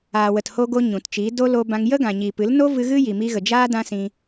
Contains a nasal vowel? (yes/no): yes